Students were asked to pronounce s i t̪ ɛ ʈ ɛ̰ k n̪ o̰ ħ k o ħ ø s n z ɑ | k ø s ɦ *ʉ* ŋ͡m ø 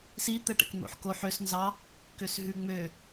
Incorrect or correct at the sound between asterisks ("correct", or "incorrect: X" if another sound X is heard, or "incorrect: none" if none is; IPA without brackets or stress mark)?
correct